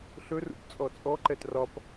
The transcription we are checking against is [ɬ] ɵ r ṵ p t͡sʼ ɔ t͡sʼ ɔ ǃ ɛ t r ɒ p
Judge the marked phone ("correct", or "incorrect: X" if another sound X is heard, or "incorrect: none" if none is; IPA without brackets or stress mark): correct